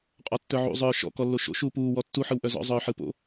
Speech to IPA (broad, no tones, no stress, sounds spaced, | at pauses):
qʼ ɔ tː œ ʕ ṵ zˤ œː ʃ ɔ̰ k ɔ lː o ʃ o̰ ʃ uː p uː w ɔ tː u ħ ɯ w ʔ œ z ɔ̰ zˤ œː ħ ɯ p o̰